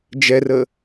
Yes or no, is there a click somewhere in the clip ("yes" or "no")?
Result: no